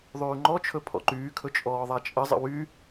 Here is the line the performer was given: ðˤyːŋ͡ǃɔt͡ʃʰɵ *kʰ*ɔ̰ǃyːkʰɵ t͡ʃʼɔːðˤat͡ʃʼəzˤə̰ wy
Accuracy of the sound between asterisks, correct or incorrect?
incorrect